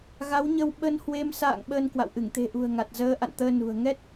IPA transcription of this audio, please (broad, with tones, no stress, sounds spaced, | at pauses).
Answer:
ɣ a˨˦ w ɲ ə˧ w ɓ ə˧ n h w e˧ m s a̰ː˧˨ ŋ ɓ əː˧ n k w a̰˧˨ w ʔ ɨ˧˩ ŋ t̪ e̤˨˩ ʔ ṳ˨˩ ə̯ ŋ a˨˩ t̚ z əː˨˦ ʔ a̰˧˨ n t̪ əː˧ n ṳ˨˩ ə̯ ŋ ɛ˦˥ t̚